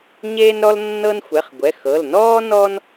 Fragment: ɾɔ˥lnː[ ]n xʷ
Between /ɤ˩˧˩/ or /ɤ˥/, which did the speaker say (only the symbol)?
ɤ˥